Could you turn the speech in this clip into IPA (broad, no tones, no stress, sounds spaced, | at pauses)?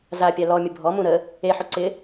z a pʲ a l ɔ mʲ ə bʱ ɔ m ũ ɾ ə | e ħ ʊ ǀ ɪ